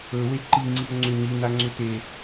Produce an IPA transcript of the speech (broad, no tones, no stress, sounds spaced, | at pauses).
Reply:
ɵ w e ǃ i ŋ͡ǀ i ʊ̯ ŋ͡ǀ ʏ ɲ i n a ŋ͡ǀ ʏ t e